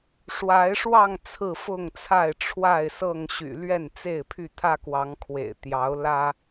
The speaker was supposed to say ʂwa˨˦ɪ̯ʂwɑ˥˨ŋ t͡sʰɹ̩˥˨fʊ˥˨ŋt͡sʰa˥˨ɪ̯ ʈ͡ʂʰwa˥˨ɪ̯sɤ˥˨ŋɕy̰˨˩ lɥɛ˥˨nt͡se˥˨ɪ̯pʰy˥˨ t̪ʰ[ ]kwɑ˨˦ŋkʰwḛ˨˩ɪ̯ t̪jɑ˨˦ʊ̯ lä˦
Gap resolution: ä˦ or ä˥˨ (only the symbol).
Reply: ä˦